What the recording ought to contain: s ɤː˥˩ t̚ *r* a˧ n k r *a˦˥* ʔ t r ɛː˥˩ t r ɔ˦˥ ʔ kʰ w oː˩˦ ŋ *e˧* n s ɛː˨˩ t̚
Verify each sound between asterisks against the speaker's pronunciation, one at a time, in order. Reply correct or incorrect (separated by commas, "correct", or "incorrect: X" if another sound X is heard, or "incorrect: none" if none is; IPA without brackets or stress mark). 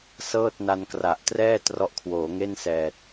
incorrect: n, incorrect: a˨˩, incorrect: e˥˩